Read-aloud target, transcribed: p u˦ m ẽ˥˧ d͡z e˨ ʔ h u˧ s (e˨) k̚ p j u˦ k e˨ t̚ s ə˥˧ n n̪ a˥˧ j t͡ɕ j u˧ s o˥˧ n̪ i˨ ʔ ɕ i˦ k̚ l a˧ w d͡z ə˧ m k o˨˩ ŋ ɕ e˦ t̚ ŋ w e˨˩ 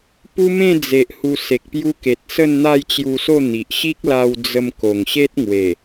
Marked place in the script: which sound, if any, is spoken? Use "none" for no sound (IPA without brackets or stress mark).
e˨